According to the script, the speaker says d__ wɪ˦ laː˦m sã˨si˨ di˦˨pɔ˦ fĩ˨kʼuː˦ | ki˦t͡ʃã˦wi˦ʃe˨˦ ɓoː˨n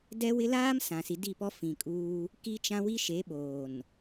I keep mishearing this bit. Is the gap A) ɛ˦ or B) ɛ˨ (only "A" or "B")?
A